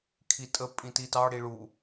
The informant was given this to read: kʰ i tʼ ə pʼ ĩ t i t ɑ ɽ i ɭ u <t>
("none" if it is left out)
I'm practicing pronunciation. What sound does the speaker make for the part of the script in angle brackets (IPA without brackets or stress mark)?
none